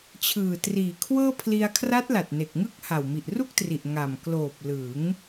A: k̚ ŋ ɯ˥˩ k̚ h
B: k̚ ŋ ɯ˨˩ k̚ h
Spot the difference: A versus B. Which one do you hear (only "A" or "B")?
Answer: A